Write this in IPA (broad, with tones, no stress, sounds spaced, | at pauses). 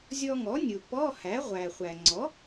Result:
zʲ ɔ˧ ŋ ɔ˩˥ nʲ u˩ p ɔ˧˥˧ h æ˩˥ ʁʷ æ˩ χʷ æ˩ ŋ͡ǀ ɔ˩˥